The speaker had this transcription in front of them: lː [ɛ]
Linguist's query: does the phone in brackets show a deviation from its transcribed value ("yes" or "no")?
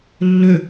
yes